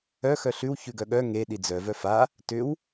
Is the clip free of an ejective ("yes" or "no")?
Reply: yes